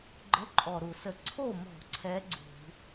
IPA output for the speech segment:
ɡ͡ǃ ə˧˥˧ ǃʼ ɔ˨˩ ɾ u˧˩˧ s ə˧˩˧ ǀʰ o˥˩ m ɔ̤˧˩˧ ǀʰ ɛ˨˦ ɡ͡ǀ ṳ˧˩˧

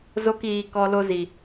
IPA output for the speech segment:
z o˦ k iː˧ k ɔ˧ l o˧ z i˨

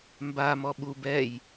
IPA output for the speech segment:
m b a m ɔ ɓ u b ɛ j

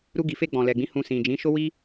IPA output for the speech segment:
ɾ u˧ ɡ i˨ f e˧ ɡ͡b ɔ̃˨ l ɛ˨ ɡ͡b ĩ˨˦ h ũ˧ s ĩ˨ d͡ʒ ĩ˨˦ ʃ o˦ w i˦

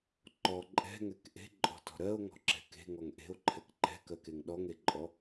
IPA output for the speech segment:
ǃ ɔ ǃʼ ɛ̤ ŋ ɛ k ʔ e̤ ǃʼ ɔ̤ t ɔ̤ ɾ ɜ o̯ ŋ ɔ̤ ǁ ɛ̤ k e̤ ŋ ɔ ŋ ʔ e̤ o̯ ǃʰ ɛ k ǃ ɛ̤ k ɜ k e ŋ ɗ ɔ ŋ e ǃʼ ɔ

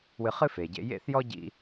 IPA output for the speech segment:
w ɨ˧ χ ɨ˥ f e˩ ɟ ḛ˧ j ḛ˥ θ j ɔ˥ ɟ ḭ˧

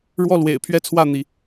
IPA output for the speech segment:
ɻ w ɔ˥˨ l w ḛ˨˩ ɪ̯ pʰ ɥ ɛ˥˨ t͡sʰ w ä˥˨ n̪ i˨˦

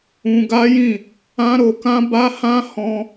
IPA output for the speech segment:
ũ˧ ɡ a˦ j ĩ˦˨ | ã˦ ɾ o˧ k ã˦ b a˦ h ã˦ h ɔ̃˧

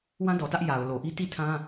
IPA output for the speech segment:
w ã˦ d ɔ˨ t ä˦ ʔ j a˨ ʊ̯ l o˨ ʔ i˦ t i˦˨ tʰ ã˦

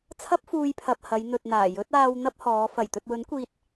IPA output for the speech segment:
t͡sʰ ɐ˥ p̚ f uː˧ j pʰ ɐ˨ p̚ h ɐ˨˧ j n̪ ɵ˨ t̚ n̪ aː˨˩ j ɵ˨˥ t̚ aː˧ w n̪ ɐ˥ p̚ h ɔː˨˧ f ɐ˨˩ j t̪ ɵ˨ t̚ w ɵ˨˥ n kʷ iː˧ t̚

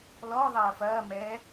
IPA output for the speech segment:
l ɔ ðˤ ɐː f ɐː m ɛ

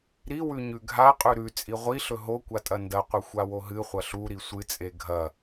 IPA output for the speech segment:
ɾ i w ʉ ɲ ʉ ɡʱ a qʼ ʉ ɾ ʉ t͡sʼ i ʁʷ i ɬ ɵ ɦ o kʷ a tʼ ɐ n d ɐ qʷ ɨ xʷ a w o ɦ ɨ χʷ ɐ ɬ u ɾ i sʷ ɨ t͡sʼ e ɡʱ ɐ

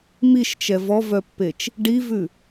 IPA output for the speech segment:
m i ʃ t͡ʃ ɛ v ɔ v œ pː e t͡ʃ | ɖ i v ʉ

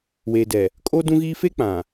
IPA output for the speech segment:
w eː˨ d ɛ˨ | kʼ o˦ d ũ˦ ɣ iː˦ f e˦ k͡p ã˨

